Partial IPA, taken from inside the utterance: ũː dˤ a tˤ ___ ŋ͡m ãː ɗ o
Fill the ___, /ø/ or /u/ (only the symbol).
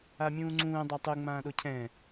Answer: u